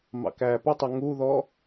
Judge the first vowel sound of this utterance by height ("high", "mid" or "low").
low